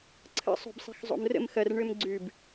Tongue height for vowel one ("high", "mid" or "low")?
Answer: mid